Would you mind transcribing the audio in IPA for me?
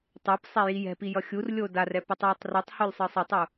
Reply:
tˤ e p sˤ e j i j ɛ̤ p i j ʌ xʲ u r lʲ o d a r ɛ p i tˤ j i tˤ r u tˤ h u lʲ sˤ ɯ sˤ ʌ tˤ u

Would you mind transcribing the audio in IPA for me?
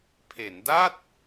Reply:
pʰ e˩˦ n d a˥˩ t̚

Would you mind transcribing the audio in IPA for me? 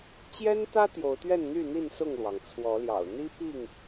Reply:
t͡ɕ j ɛ˦ n t̪ ä˦ t̪ j o˨˦ ʊ̯ t̪ ɥ ɛ˥˨ n n̪ y˥˨ n̪ i˥˨ n s ʊ˥˨ ŋ l w ɑ˩ ŋ t͡sʰ w ɔ˨˦ l j ɑ̰˨˩ ʊ̯ n̪ i˦ p i˥˨ ŋ

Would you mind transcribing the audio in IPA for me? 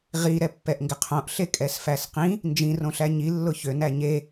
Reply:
ʁ i ɾ ɛ pː ɛ ʔ ŋ ɡ ɪ qʰ õ ʔ ɬ e kʼ ɛ s f æ s q ĩ | n d͡ʒ ĩ r õ ɬ æ ɲ i lː ʊ ç ø n æ ɲ e

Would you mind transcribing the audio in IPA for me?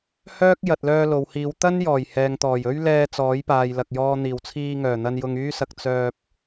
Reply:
h œː˥ k̚ j ɐ˨ t̚ l œː˧ l o˨ w h iː˨˧ w t̪ ɐ˥ n j ɔː˨˩ j h ɛː˨ ŋ t̪ ɔː˨˩ j ɵ˥ ɥ l ɛː˧ t͡s ɔː˨˥ j p aː˨ j l ɐ˨ k̚ j ɔː˧ n̪ iː˨˩ w t͡sʰ iː˧ ŋ œː˨˩ n̪ ɐ˧ n j ʊ˧ ŋ yː˥ s ɐ˧ k̚ t͡s œː˧ p̚

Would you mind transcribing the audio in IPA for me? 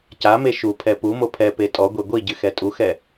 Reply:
c a m e ʃ u pʰ ɛ p u m o pʰ ɛ p e tʼ ɔ ɡʷ e ɡʷ i ɟ ɨ x ɛ tʼ u x ɛ

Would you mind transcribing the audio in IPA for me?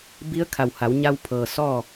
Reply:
b i˧˥ ə̯ kʰ a˧˩ w h a˩˧ w ɲ a˧ w pʰ ɤː˩ s ɔː˥˨

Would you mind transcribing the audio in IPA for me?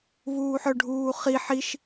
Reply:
v uː ħ œ ɖʱ uː χ i ħ i ʃ

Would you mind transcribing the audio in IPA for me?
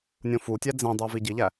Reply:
nʲ õ f u tʲ æ d͡z ẽ dˤ u v i ɟ i ʎ æ

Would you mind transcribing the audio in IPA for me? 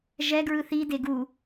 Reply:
ʒ ɛ ɡ ɹ ɯ θ i d e ɡ u

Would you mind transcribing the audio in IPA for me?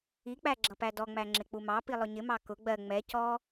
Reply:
i k͡p æ ɡ͡ǁ ʌ p æ d ɔ ŋ͡m æ ŋ͡ǁ ɪ k͡p u m ɑ p i lˠ ʊ ɲ ɪ m ɑ k ʊ ɡ͡b ɜ ŋ͡m ɛ c ɔ

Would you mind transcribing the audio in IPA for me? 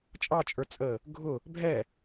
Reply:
t͡ʃʼ ɑ t͡ʃʼ ə˞ t͡sʼ ə | ɡʱ ʊ | bʱ ɛ

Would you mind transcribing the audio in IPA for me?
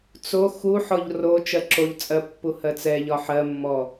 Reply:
t͡s o x u ħ ɔ ʎ r o t͡ʃ ɜ ǁ o ʎ t͡sʼ ɜ pː u h ɜ t͡s ɛ ʎ ɒ ħ ɜ mː ɔ

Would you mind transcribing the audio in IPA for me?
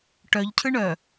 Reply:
ʈ œ ʎ cʰ ɯ ɳ œ

